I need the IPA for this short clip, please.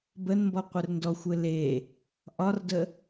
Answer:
bənmbɔ qʷɘrndɔxʷɘ le | ʔɒrdə

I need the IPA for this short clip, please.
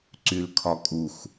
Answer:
ǀylkʰɒkʼux

